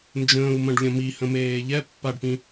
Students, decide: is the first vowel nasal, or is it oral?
nasal